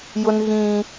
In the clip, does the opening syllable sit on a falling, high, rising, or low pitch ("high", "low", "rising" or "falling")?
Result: high